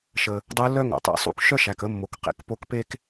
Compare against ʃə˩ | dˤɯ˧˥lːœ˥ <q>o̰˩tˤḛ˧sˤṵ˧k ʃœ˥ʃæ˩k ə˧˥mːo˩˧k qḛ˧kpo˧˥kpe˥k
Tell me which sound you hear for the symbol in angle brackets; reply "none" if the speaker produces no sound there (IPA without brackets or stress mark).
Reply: ŋ